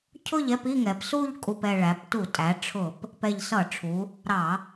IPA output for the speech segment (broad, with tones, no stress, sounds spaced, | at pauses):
cʰ ʊ˥˧ ʎ ɛ˥˧ p i˥˧ ŋ ɛ˩˧ p s u˥˧ ʎ kʼ u˨˩ p ɛ˨˩ ɭ æ˩˧ p t u˧˩˧ tʼ æ˩˧ ʈ͡ʂʰ ʊ˧˩˧ p | p ɛ˨˩ ʎ s ʌ˧˩˧ ʈ͡ʂʰ u˩˧ | ɾ ɑ˧˩˧